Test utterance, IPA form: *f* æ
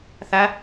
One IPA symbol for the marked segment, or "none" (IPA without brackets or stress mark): θ